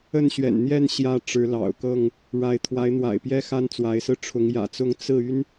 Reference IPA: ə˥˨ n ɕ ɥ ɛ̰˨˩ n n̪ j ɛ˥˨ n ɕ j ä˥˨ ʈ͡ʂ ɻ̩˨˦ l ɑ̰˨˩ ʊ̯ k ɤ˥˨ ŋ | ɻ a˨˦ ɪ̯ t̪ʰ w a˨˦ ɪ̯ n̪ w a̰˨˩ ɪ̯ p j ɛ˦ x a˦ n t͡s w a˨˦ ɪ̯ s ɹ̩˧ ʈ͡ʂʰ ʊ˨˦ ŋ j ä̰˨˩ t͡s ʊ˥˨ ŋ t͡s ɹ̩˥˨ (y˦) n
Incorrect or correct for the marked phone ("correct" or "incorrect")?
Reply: correct